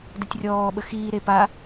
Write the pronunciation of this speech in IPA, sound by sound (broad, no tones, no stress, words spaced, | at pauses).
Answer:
dɛtʲrʲɔː ɓəxiːɾe pa